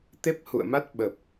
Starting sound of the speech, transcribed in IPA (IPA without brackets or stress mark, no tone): t̪